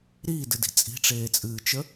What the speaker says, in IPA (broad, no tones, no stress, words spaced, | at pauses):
ɾiːdɨdi̤ t͡sʼi̤ʈ͡ʂeːt͡sʼɨːt͡ʃə